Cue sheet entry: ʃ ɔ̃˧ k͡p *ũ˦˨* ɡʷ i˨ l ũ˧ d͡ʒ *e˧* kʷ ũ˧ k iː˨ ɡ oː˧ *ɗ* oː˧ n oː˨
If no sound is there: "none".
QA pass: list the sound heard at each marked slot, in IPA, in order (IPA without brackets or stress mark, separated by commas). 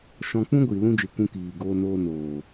ũ˦, e˨, n